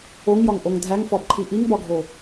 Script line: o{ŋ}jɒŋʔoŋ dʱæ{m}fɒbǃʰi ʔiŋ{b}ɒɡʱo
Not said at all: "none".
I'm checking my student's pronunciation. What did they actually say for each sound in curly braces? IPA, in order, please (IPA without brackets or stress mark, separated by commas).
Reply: ŋ, ŋ, b